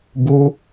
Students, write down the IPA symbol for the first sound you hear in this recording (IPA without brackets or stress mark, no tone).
b